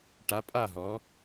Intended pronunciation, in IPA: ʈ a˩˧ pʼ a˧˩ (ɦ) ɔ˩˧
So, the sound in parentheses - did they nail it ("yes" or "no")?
yes